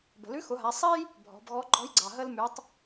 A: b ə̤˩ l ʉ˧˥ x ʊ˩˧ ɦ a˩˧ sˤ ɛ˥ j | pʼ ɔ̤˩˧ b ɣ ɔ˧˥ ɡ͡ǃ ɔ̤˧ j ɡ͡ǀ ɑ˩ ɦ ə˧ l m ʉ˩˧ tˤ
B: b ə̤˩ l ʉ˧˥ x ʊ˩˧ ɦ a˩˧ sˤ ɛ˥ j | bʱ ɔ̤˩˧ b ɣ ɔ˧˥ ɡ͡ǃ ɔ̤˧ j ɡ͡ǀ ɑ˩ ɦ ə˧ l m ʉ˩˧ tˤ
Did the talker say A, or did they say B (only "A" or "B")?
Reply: B